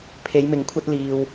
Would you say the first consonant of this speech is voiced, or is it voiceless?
voiceless